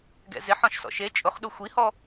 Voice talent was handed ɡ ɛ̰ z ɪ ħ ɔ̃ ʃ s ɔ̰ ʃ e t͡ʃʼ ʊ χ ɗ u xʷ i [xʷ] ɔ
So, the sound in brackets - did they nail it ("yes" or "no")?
no